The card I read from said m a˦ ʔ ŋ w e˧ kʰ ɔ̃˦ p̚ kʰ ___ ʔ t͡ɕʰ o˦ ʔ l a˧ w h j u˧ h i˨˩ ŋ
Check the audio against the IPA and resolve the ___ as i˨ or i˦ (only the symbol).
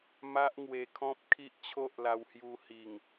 i˦